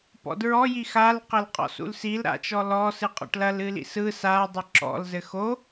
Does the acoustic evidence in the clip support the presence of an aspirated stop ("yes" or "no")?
no